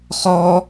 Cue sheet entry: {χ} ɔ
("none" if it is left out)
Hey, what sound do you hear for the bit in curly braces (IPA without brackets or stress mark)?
χ